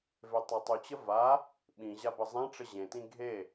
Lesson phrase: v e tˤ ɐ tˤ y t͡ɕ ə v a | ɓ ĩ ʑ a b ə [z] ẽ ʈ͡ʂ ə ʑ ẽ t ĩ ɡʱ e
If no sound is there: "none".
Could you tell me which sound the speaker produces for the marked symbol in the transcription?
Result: zˤ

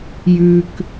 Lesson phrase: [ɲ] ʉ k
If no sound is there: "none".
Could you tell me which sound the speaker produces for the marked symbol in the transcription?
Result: j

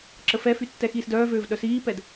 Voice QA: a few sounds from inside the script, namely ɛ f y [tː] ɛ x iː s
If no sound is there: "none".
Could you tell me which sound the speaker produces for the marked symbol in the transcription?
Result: tː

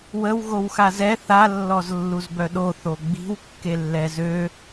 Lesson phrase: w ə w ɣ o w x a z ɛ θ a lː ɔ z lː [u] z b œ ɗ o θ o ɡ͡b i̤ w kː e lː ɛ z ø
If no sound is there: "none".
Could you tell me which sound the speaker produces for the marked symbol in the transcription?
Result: u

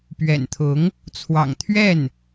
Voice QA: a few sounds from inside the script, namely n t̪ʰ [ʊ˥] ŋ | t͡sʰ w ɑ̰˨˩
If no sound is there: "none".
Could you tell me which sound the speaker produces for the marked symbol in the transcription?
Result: ʊ˧˥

